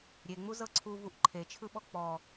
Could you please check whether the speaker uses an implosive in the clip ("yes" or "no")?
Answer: yes